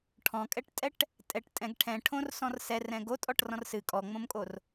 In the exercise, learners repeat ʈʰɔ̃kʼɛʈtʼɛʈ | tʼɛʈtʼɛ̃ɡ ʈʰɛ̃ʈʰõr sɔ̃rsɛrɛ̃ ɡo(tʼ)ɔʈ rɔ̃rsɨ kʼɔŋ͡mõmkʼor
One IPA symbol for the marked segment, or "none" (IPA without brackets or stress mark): tʼ